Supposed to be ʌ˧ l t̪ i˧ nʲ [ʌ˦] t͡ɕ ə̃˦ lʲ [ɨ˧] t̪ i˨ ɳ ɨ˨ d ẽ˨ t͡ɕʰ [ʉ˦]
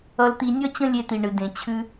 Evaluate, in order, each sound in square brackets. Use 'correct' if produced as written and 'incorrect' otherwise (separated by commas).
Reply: correct, incorrect, incorrect